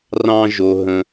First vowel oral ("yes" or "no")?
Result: no